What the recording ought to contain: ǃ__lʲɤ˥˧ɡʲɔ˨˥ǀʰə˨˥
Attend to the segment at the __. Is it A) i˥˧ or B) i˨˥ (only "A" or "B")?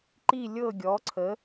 A